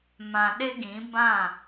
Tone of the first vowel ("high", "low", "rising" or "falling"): low